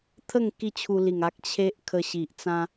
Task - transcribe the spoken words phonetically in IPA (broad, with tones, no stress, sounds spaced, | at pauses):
t̪ʰ ə˥˧ ŋ k i˦ t͡ɕʰ u˧ l i˨˩ ŋ a˦ k̚ t͡ɕʰ e˦ ʔ kʰ ə˧ ɕ i˨ ʔ t͡s ã˧